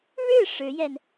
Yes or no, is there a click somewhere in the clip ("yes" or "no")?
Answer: no